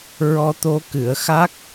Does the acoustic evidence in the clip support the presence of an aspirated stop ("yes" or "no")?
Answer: no